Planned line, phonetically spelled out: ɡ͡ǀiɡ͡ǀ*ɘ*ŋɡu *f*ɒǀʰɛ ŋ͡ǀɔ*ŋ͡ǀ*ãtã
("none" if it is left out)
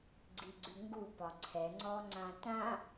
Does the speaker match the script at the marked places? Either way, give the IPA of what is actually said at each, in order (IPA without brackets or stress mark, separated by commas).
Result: ʉ, p, ŋ͡ǀ